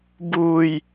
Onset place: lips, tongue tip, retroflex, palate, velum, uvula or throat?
lips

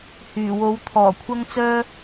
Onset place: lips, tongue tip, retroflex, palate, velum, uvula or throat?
throat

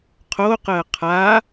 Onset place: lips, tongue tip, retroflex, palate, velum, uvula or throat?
uvula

